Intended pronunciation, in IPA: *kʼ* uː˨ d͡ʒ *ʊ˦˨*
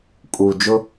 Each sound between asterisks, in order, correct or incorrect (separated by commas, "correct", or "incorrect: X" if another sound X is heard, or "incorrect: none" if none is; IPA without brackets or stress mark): correct, incorrect: ʊ˦